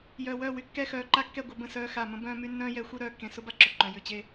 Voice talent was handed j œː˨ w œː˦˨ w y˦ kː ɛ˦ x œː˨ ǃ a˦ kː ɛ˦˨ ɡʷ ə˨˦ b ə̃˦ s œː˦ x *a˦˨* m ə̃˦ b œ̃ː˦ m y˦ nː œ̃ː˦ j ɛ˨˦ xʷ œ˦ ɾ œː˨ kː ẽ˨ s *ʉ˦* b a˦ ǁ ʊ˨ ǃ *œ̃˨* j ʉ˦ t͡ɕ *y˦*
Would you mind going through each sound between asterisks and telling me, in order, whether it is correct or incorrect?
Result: correct, incorrect: ʊ˦, correct, incorrect: e˦

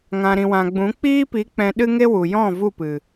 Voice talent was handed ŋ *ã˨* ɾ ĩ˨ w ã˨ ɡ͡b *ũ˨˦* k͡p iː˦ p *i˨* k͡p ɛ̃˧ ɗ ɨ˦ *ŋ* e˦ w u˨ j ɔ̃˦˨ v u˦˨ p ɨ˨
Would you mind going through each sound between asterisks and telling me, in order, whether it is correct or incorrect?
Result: correct, correct, incorrect: i˨˦, correct

